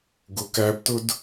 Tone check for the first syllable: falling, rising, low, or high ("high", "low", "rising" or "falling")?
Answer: low